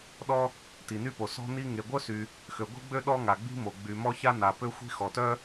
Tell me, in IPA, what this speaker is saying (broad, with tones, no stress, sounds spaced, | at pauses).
ɗ ɔ˥ | t i˩ n y˥ p o˩ s ɔ̤˥ n i˥ ŋ e˩ ɡʷ œ˥ s y˩ | x ø˩ ɡʷ i̤˥ ɡ͡b ø˥ ɗ ɔ˥ ŋ a˩ ɡ͡b i̤˥ m o˩ ɡ͡b y˩ m ɔ˥ ç a˥ n a˩ p ø˥ xʷ i̤˥ x ɔ˩ t œ˥